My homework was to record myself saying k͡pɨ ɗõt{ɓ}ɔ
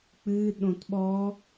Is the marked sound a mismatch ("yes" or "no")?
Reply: no